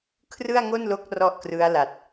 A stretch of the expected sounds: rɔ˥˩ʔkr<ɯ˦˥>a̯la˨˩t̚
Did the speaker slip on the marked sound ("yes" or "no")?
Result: no